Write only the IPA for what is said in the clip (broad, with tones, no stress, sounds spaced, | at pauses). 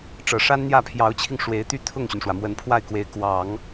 ʈ͡ʂ ɤ˨˩ ʂ a˥ n n̪ j ä˥˩ pʰ j ɑ˧˥ ʊ̯ t͡ɕʰ i˧ ŋ ʂ w e˧˥ ɪ̯ t̪ y˥˧ t̪ʰ ʊ˥˩ ŋ ɕ y˩ n ʂ w ä˩ m w ə˧˥ n pʰ w a˥˩ ɪ̯ k w e˧˥ ɪ̯ k w ɑ˨˩˦ ŋ